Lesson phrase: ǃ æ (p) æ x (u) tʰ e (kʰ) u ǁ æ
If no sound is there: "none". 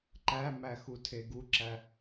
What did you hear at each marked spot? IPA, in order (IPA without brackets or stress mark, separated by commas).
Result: m, u, ɡ